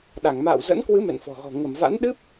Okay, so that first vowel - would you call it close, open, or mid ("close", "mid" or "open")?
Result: open